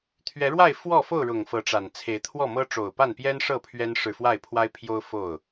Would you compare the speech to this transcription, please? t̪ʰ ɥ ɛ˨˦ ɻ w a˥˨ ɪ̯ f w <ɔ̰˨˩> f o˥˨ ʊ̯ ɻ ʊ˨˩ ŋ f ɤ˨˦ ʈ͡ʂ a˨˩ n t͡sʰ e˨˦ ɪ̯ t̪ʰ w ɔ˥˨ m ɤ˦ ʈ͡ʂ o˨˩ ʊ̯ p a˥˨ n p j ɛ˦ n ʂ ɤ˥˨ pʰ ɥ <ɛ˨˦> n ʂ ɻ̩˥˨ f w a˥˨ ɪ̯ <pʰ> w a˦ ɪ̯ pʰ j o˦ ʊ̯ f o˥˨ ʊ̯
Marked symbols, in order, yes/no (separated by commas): no, no, yes